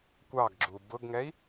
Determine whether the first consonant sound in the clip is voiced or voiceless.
voiceless